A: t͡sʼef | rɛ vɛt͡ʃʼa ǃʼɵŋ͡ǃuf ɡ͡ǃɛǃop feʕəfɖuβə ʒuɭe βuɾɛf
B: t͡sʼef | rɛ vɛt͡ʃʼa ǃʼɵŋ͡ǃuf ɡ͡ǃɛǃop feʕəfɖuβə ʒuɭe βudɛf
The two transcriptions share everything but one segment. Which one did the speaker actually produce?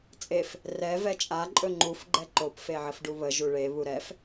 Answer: A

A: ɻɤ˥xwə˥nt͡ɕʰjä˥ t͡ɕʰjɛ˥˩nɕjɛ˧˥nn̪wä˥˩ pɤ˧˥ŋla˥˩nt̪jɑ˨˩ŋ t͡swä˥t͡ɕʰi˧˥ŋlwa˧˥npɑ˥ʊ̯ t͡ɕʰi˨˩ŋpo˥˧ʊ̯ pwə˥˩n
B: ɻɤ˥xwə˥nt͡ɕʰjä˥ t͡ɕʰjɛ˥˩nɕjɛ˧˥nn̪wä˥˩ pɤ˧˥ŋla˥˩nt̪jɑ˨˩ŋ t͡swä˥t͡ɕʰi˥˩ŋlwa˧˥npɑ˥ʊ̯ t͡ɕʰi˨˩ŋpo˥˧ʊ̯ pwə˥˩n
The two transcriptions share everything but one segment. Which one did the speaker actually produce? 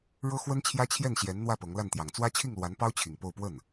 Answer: B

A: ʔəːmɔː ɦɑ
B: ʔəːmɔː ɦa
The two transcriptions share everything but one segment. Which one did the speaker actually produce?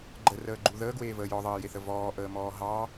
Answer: A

